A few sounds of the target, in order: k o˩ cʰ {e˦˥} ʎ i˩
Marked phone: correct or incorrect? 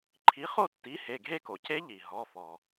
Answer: correct